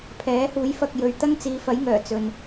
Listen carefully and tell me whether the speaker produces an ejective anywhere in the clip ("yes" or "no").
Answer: no